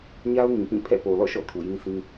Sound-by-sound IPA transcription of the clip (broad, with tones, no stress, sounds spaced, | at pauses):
ɲ a˦ ʊ̯ ŋ ĩ˨ p ĩ˦˨ pʰ ɛ̰˦˨ p o˨ l ɔ̰˦˨ ʃ ɔ̰˦˨ tʰ u˨ j ĩ˦ sʰ ĩ˦